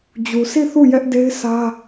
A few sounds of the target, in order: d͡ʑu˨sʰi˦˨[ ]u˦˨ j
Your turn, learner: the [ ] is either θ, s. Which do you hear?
θ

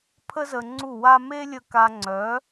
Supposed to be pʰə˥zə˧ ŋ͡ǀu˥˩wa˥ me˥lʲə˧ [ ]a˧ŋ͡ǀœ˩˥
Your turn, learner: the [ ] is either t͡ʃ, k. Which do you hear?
k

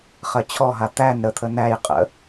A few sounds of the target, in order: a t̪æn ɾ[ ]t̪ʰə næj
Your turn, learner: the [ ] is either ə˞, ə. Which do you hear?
ə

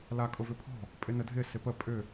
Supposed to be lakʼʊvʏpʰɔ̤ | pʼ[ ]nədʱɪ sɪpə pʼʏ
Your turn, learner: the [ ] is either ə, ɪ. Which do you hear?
ɪ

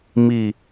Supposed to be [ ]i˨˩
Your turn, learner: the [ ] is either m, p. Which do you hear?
m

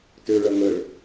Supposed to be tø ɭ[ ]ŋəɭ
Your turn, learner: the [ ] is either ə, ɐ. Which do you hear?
ɐ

